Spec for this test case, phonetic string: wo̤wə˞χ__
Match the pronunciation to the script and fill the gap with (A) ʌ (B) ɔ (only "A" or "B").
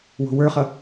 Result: A